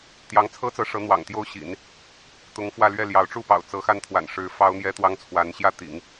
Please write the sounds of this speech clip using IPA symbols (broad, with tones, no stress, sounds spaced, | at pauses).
t̪ j ɑ˧˥ ŋ t͡sʰ ɤ˥ t͡s ɤ˧˥ ʂ ɤ˧˥ n̪ w ɑ̰˨˩ ŋ t̪ j o˥ ʊ̯ ɕ ḭ˨˩˦ n | t̪ ʊ˧˥ ŋ f w ä˥˧ l ɥ ɛ˥˩ l j ɑ˧˥ ʊ̯ ʈ͡ʂ u˥˩ p ɑ̰˨˩ ʊ̯ t͡s ɤ˧˥ x a˥˩ n t̪ʰ w a̰˨˩ n ʂ ɻ̩˧˥ f ɑ˥ ʊ̯ n̪ j ɛ˥ t̪ w ɑ˥ ŋ t͡sʰ w a˧˥ n ɕ j ä˥˩ t̪ ḭ˨˩˦ ŋ